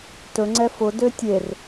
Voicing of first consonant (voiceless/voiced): voiceless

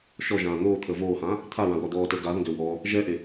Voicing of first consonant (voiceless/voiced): voiceless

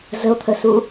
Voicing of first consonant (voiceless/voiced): voiced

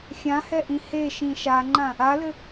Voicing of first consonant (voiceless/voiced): voiceless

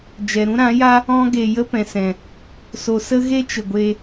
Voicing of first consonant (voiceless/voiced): voiced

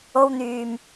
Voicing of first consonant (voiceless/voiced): voiced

